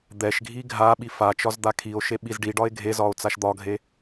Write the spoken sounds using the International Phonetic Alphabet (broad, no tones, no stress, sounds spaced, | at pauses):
d̪ ɛ ʃ ɡʱ i ɡʱ a ɓ i f a t͡ʃ ɒ z d̪ a kʰ i o̯ ʃ e ɓ i z ɖ i ɖ ɒ e̯ ɡʱ e z ɒ o̯ t͡s a ʃ d̪ ɒ ɡʱ e